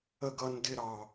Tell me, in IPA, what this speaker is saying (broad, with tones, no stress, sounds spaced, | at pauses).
ə˦ ɡ ʌ˦ n d ɪ˦ ɾ ɑ˦